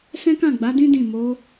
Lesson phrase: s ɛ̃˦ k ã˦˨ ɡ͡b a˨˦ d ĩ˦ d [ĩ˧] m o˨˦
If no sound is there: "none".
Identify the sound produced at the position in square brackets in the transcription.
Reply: ĩ˦˨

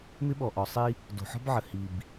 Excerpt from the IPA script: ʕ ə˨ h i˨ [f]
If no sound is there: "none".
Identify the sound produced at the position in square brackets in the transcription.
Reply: b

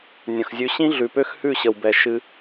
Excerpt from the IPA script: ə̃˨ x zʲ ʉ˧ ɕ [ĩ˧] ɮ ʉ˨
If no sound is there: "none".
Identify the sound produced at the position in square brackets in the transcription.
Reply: ĩ˦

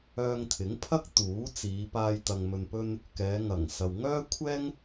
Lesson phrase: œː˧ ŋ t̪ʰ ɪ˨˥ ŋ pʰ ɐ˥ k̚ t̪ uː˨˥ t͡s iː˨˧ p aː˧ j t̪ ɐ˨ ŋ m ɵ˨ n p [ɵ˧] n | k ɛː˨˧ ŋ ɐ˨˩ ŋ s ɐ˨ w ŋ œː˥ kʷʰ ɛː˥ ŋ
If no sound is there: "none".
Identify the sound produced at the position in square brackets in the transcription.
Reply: ɵ˧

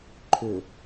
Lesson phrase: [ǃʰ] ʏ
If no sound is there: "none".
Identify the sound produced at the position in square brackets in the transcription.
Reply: ǃʰ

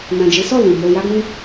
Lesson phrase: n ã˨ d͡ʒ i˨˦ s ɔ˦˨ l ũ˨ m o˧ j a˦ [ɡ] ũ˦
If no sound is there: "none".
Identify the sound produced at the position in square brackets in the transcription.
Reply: ɡ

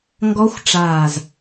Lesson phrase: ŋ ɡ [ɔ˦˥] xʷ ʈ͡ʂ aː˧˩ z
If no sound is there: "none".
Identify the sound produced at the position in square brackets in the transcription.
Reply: ɔ˦˥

